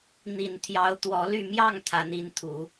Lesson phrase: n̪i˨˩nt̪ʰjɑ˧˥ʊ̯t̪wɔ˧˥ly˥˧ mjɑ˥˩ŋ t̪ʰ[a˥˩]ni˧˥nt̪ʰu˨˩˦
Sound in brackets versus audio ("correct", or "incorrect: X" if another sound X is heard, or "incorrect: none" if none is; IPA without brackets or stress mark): incorrect: a˧˥